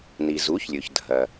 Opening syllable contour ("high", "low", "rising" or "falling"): low